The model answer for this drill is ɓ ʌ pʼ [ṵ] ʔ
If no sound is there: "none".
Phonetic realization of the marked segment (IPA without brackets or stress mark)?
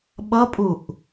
u